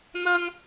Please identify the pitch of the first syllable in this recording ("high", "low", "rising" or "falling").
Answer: high